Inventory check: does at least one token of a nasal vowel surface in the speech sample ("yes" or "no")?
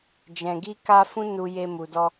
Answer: yes